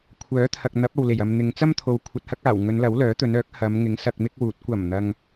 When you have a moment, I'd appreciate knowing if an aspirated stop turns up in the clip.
yes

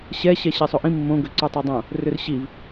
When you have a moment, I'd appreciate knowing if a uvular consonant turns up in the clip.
no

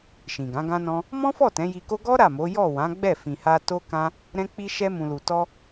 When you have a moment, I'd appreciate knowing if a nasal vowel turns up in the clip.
yes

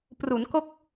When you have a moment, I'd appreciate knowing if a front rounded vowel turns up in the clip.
no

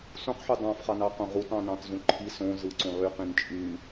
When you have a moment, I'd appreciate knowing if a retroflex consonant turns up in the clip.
no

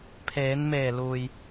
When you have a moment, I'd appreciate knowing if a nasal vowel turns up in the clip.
no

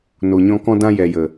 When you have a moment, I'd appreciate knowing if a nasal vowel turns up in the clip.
yes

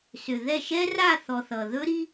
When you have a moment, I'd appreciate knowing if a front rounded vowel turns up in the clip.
yes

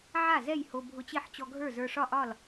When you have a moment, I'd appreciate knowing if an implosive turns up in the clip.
no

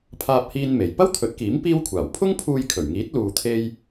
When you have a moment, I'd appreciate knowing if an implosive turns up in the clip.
no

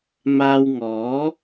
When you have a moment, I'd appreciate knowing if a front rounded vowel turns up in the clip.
no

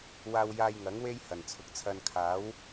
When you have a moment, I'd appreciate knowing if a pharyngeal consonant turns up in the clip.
no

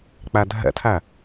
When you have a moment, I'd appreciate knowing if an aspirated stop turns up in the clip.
yes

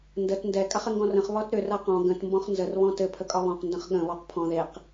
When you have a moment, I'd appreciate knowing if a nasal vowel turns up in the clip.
yes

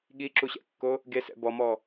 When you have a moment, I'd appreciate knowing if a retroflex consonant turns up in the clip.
no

